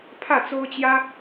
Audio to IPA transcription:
pʰ ä˥˩ t͡s o˥ ʊ̯ t͡ɕ j ä˥

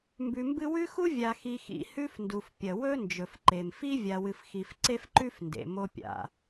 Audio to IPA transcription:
m b ʉ˨ m b ɨ˦ w ʉ˥ x u˥ vʲ a˨ x i˨ x ḭ˨ h ʉ˦ f n d u˩ f pʲ ɐ˩ w ɵ˥ n d͡ʒ ɵ˩ f ǃ e˩ m f i˥ vʲ a˨ w ɨ˨ f x i˨ f ǀ e˦ f ǃ ʉ˦ f n d ḛ˩ m o˦ pʲ a̰˩

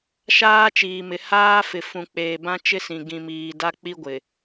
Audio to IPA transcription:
ʃ aː˦ t͡ʃ iː˨ m ɪ˨ h aː˦ f ɪ˨ f ũ˨ k͡p eː˨ b ã˦ t͡ʃ ɪ˦ s ĩ˨ ɡ ĩ˨ m iː˨ d a˦ k͡p i˦ ɡʷ ɪ˨

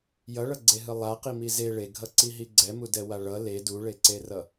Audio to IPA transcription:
j ʌ ɭ ʌ ɡ͡ǀ e ɦ ɯ lˠ a q i m i z e ɭ e ɡʱ ʌ ǀ i ɦ i ɡ͡ǀ ɛ m u d ɛ w a ɭ ʌ l e d u ɭ e ǀ e r ʌ

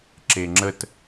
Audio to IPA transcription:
ǁ e ŋ͡ǁ ə t

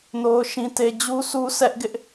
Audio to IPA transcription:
n o˦ ʊ̯ ʃ ĩ˦ t e˦ d͡ʑ u˦ sʰ u˦ sʰ ɛ˦ ʔ ɡ ɪ˦ ʔ

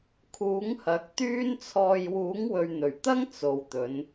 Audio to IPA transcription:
kʰ uː˨˥ ŋ h ɐ˨˥ k̚ t̪ yː˥ n t͡sʰ ɔː˧ j w uː˨˥ ŋ w ɵ˨ ɥ n̪ ɵ˨˩ ɥ t̪ ɐ˥ ŋ t͡s o˨ w t̪ ɵ˨˧ n

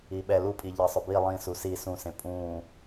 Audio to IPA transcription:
i ɓ ɛ l u pʼ i ʎ e sˤ ʊ b i lˠ ĩ s u s i s ũ s ẽ pʼ ũː

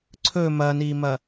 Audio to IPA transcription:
ǀʰ ɵ m ɐ n i m ɐ

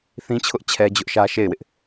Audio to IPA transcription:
θ ĩ˦ t͡ɕʰ ʊ˦ ʔ t͡ɕʰ ɛ˦ d͡ʑ ʊ˦ ʔ ʃ ä˦ ʃ e˦˨ ɪ̯ w ɪ˦ ʔ

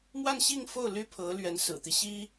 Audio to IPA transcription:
m w a˥˧ n ɕ i˥˧ ŋ f o˥˩ ʊ̯ l y˥ pʰ ɤ˧˥ l ɥ ɛ˧˥ n s ɹ̩˨˩ t̪ i˦ ɕ i˥

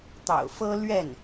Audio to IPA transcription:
t̪ ɑ̰˨˩ ʊ̯ f ɤ˥ l ɥ ɛ˥˩ n

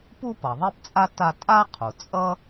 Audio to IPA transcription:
p u˥ p ʌ˩ ðˤ e˥ p t͡sʼ a˥ t a˥ tʼ a˥ qʰ u˩ t͡sʼ ʌ˥

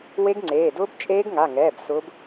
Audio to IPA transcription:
w e˦˥ ɡ ŋ͡ǀ eː˩˧˩ d ʊː˦˥ b t͡ʃʼ eː˦˥ ɡ ŋ a˩˧˩ ŋ ɛː˩˧˩ b s ʊː˨˦ b

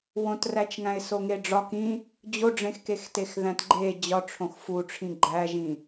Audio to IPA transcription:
w õ t r æ t͡ʃ ŋ æ̃ ɪ̯ s o ŋ e ɖ͡ʐ ɒ k ĩ | d͡ʑ o ɖ͡ʐ ẽ x k e x t e x ð æ̃ t ɡ͡ǃ e d͡ʑ ɒ ʈ͡ʂʰ õ x f u ʈ͡ʂʰ ĩ ɡ͡ǃ æ ʒ ĩ

